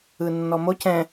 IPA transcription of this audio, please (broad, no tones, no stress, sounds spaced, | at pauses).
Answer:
ɯ nː ɔ m o c ɛ̃